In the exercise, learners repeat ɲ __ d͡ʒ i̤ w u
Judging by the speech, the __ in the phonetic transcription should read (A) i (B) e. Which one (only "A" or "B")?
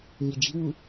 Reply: A